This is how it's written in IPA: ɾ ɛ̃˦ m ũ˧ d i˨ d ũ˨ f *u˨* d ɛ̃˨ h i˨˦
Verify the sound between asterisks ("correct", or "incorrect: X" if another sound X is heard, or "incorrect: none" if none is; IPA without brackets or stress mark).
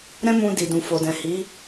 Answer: incorrect: o˨